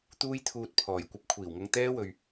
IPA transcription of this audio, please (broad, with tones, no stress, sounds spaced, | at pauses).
t̪ uː˥ j t̪ʰ uː˧ t̚ pʰ ɔː˨˩ j kʷ ɐ˧ p̚ kʷʰ iː˨˩ w ŋ ɐ˧ ŋ t̪ ɛː˥ w ɵ˨ ɥ